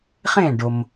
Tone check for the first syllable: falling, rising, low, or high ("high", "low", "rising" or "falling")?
falling